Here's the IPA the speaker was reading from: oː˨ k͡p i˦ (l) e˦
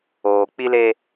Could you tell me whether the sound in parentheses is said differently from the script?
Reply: no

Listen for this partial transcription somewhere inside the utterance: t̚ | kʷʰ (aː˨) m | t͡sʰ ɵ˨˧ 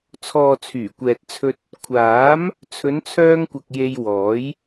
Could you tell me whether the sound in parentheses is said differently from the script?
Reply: yes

